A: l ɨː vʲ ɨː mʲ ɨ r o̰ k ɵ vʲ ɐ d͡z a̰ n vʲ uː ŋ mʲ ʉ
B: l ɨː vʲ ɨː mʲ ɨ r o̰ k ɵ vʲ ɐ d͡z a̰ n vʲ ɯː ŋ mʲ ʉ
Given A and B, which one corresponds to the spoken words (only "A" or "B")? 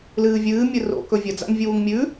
A